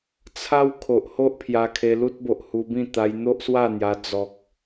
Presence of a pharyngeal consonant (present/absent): absent